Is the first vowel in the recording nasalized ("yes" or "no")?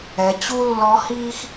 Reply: no